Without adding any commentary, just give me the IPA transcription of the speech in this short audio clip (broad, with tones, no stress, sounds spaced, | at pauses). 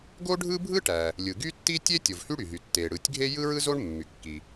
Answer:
ɡ o˥ ɖʱ ɯ˥ bʱ ɯ˥ ʈ æ˩ | lʲ ɯ˩ ɡ y˥ tː i˥ tʲ e˥ tʲ o˩ v h y˥ ɽ y˩ ɦ y˩ tː e˩ ɽ ɯ˩ tʲ ɡʱ e˥ j ɯ˥ ɹ ɯ˥ z o˥ ɳ mː y˩ kː i˩